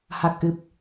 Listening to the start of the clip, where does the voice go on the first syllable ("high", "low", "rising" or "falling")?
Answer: low